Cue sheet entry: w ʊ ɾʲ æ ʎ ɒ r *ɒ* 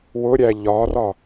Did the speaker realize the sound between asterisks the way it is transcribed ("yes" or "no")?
yes